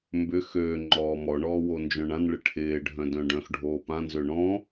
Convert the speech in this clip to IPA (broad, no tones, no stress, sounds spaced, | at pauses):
m b ʏ x øː ŋ͡ǃ ɔː m ɔ ɳ ɔː w o n d͡ʒ œ̃ ɳ ã n ɭ ɪ ʈʰ ɪː ɖʱ œ̃ d œ̃ ɖ œ̃ x ɖʱ oː p ã n z ø ɳ ɔ̃